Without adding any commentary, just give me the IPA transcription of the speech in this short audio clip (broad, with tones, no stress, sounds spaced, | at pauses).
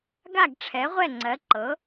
ɡ a˥˩ ɡ ʈ͡ʂʰ ɛ˩˥ ʁʷ ɛ˥˩ ŋ͡ǀ ɜ˩˥ ǃ ɤ˩˥